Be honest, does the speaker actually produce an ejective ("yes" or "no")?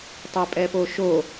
yes